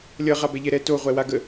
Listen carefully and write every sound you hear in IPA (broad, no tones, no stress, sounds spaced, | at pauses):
lʲ ʌ ʁ a b ɛ ʎ ɛ ɾ ɛ t o ʁʷ ɛ w a ɡ ə